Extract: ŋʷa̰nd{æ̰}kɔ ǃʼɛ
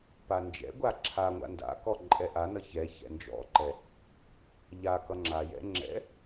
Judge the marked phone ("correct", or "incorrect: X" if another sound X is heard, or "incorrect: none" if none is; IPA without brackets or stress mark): incorrect: a̰